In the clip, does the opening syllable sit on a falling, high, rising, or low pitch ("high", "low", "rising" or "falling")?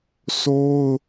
high